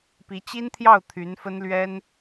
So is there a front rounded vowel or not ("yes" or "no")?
yes